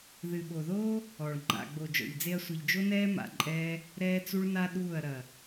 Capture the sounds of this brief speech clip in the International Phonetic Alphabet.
ð ɨ˨ ɓ o˨ ð oː˦ | ɔ˨ ɭ ŋ͡ǃ a̰˨ ɡ͡b o˨ d͡ʒ ɔ̰˨ ʎ d͡z e˧ ɐ̯ sʷ i˨ ʎ d͡ʒ o˦ n ɛː˦ m a̰˧ ǃʼ ɛː˦ | ɾ ɛː˦ t͡s u˦ ɭ n a˦ ɗ uː˦˨ ɐ̯ ɾ ɐ˨

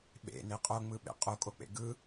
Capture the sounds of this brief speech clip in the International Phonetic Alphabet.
ɓ ḛ n e qʼ o ŋ͡m ɯ ɓ ḛ qʼ o kʼ o k͡p ḛ ɡ ɯ

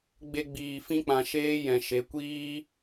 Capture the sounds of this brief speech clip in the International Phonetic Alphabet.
ɡ͡b e˧ ɡ͡b iː˨ f ĩ˧ k͡p ã˨ ʃ eː˧ j ɛ̃˨ ʃ e˨˦ kʷ iː˦

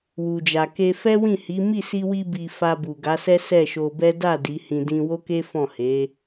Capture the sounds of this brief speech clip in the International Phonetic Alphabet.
w u˨ d͡ʒ a˨ k e˧ f ɛ˦ w ĩ˦˨ h i˨˦ m i˦˨ s i˧ w i˧ b i˨ f a˧ b u˨ ɡ a˨˦ s ɛ˦ s ɛ˦˨ ʃ o˧ b ɛ˦ d a˦˨ d i˨˦ h ĩ˧ d ĩ˧ w o˦ k e˦ f ɔ̃˦˨ h e˨˦

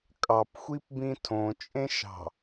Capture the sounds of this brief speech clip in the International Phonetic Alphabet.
kʼ ɑ p xʷ i p b ĩ tʰ õ t͡ʃʼ ẽ ʃ ɑ̤

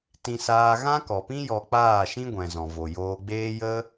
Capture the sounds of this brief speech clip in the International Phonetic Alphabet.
t ĩ˧ s aː˧ ɣ ã˦ k ɔ˨ p ĩ˦ j ɔ˧ k͡p aː˦˨ ʃ ĩ˦ ɡʷ ɛ̃˨ z ɔ̃˨ v o˨ j oː˧ ɡ͡b eː˦ j ə˦

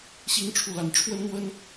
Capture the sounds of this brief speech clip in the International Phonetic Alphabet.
ɕ i˥ ŋ ʈ͡ʂʰ u˥˩ l a˧˥ n ʈ͡ʂʰ w ə˥ n n̪ w ə˥ n

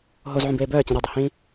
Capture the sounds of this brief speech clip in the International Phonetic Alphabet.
ɦ o z ʕ ũ b eː b œː t͡ɕ ĩ ɾ ə dˤ ə h ĩ

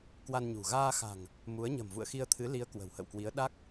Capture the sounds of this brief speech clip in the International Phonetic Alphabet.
k w a˧ n ɲ ṳ˨˩ ɣ aː˧ x a̤˨˩ ŋ | m u˨˦ ə̯ ɲ ə̤˨˩ m v ṵ˧˨ ə̯ x i˧ ə̯ t̪ʰ ɨ˨˦ l i˨˦ ə̯ k w ə̤˨˩ w h ə̰˧˨ w k w i˨˦ ə̯ ɗ a˦˥ k̚

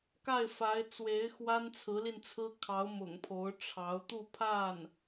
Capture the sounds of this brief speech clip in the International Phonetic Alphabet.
k a˥˩ ɪ̯ f a˧˥ ɪ̯ t͡s w e˧˥ ɪ̯ x w a˥ n t͡sʰ ɹ̩˧˥ l i˧ n t͡sʰ ɹ̩˥ kʰ ɑ˧˥ ʊ̯ m ʊ̰˨˩ ŋ pʰ o˧˥ ʊ̯ ʈ͡ʂʰ ɑ˧˥ ʊ̯ t̪ u˥˧ pʰ a˥˩ n

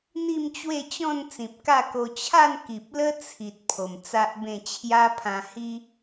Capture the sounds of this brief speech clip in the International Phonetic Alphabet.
n̪ i˥˧ m t͡ɕ w e˥˧ t͡ɕ ɔ̃˥˧ n t͡s ĩ˨ p̚ k a˥˧ k o˧ t͡ɕʰ a˥˧ n k i˨ p̚ l ə˦ t͡sʰ i˨ t̚ pʰ o˨˩ m t͡s a˦ ʔ b ẽ˥˧ t͡ɕʰ j a˦ pʰ ã˧ h i˦

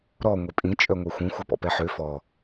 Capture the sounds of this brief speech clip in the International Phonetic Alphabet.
ɾ ɔ ŋʷ e pʼ ĩ t͡ʃʼ œ ŋʷ ɛ xʷ ĩ xʷ œ p ɔ̰ p ɛ ħ ø f ɔ

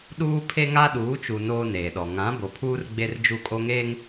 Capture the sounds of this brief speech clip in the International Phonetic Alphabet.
ɗ uː˦ pʰ e˦ ŋ a˦ ɗ uː˨˦ t͡ʃ u˨ n oː˦ n eː˨ ɗ ɔ˨ ŋ ã˨˦ b o˨ pʰ uː˦ r ɡ͡b e˦ r d͡ʒ u˦˨ kʼ o˦ ŋ eː˦ ŋ

